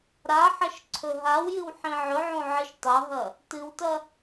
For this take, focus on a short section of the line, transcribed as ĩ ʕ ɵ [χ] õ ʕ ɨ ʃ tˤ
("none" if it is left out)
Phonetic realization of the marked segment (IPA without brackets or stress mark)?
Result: ʕ